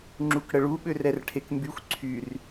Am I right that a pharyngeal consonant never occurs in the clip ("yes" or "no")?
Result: yes